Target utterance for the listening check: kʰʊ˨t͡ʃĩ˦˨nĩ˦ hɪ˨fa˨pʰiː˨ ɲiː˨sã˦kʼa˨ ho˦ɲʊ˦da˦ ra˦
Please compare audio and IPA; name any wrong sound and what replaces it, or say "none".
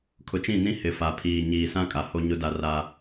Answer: none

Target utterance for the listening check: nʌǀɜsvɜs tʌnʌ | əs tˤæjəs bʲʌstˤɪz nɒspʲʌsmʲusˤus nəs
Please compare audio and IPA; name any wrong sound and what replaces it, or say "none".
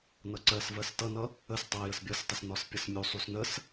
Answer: z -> s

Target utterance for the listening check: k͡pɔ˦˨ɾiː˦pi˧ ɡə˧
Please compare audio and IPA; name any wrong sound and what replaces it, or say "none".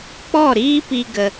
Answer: none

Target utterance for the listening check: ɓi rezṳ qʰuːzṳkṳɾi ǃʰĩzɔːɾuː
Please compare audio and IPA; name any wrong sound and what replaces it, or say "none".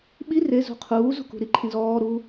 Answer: none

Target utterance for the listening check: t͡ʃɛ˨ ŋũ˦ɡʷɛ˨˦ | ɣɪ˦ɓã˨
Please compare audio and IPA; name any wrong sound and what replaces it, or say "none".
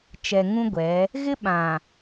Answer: none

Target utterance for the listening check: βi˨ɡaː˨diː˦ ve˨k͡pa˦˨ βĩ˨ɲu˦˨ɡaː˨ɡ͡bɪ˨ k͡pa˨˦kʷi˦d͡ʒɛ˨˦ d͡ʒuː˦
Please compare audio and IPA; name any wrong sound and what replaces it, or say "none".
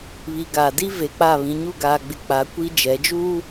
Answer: iː˦ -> i˦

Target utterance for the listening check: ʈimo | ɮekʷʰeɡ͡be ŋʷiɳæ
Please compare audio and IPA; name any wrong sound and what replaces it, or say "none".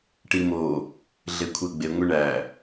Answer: none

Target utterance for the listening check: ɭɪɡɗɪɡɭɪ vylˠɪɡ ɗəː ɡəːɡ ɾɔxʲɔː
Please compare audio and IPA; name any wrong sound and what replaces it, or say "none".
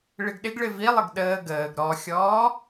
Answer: y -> i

